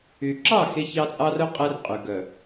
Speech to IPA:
y˨ ǁ ɑ˦˨ x e˦ ç ɑ˦ t͡sʼ ɑ˦ r œ˦ qʼ ɛ˦ r qʼ y˨ ɡ œ˨

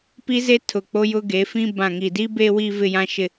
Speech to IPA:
p i˦ z e˦ tʰ ʊ˨ k͡p o˦ j ʊ˦ ɡ e˨˦ f ĩ˦ b ã˨ ŋ i˨ d i˦ b e˦ w i˦ v ɪ˦ j ã˦ ʃ ɪ˦

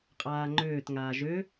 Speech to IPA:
qʼ aː ŋ͡ǃ øː t ŋ aː ʒ ø

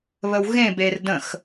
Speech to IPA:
β ə w ɣ ẽ b e r d ə̃ x

